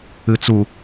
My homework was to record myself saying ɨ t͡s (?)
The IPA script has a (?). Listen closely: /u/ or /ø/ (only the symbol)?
u